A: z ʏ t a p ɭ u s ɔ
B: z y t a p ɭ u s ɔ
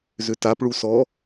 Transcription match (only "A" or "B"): A